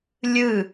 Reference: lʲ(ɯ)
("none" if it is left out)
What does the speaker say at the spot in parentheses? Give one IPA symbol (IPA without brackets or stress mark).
ɯ